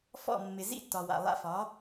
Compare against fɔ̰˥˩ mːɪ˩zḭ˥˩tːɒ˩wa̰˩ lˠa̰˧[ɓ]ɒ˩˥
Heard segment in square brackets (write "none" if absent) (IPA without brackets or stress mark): f